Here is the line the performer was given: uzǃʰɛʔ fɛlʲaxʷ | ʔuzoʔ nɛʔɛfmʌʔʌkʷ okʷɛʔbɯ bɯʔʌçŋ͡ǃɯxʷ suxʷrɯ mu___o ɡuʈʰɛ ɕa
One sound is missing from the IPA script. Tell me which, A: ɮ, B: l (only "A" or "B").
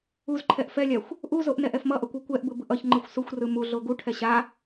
A